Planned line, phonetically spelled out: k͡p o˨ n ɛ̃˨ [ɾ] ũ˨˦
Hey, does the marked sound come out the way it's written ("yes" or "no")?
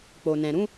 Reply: yes